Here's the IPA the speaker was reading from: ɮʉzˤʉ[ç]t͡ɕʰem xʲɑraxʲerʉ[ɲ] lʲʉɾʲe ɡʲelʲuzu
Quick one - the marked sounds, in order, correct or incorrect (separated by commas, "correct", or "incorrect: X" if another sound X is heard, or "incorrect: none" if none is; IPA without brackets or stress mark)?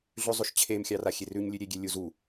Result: incorrect: ʃ, correct